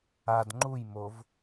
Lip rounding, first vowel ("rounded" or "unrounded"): unrounded